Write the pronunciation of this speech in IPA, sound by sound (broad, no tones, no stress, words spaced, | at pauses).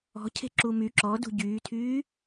ɔ̤cʰe̤ǁu my ǁɔdṳ ɟyːtʰyː